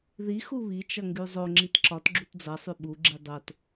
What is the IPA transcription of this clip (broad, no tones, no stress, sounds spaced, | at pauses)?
ð i x u β i t͡ʃ ʌ ŋ ɡ y zˤ o ŋ͡ǁ i t ǁ ɒ t ɡ͡ǁ u t d͡z ʌ sˤ y ɓ u ɡ͡ǁ i dˤ o t